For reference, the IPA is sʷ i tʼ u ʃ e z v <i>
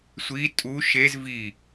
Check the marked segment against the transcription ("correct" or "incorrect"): correct